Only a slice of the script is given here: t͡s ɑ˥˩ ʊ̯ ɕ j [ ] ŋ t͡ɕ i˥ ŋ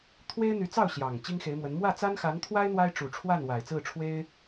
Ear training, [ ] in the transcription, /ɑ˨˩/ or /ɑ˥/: ɑ˨˩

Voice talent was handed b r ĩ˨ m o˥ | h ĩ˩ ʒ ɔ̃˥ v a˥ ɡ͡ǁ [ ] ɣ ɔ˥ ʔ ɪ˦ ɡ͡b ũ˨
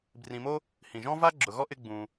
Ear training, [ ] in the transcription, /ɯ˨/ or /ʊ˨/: ʊ˨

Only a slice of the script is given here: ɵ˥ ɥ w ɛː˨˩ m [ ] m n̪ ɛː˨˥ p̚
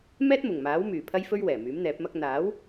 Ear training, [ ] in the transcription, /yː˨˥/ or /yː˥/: yː˨˥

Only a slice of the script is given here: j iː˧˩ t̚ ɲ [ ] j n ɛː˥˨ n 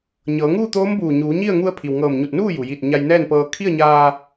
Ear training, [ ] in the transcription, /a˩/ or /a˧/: a˧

